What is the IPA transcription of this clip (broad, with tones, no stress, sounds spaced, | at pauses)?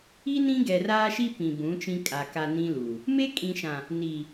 i˦ n ĩ˦ ɡ ɛ˨ r aː˦ ʃ i˦ p ĩ˨ b ũ˨˦ t͡ʃ ĩ˦ kʼ a˨ k a˨ n ĩ˦ l u˨ | m e˦ kʼ ĩ˨ ʃ ã˨ | n i˨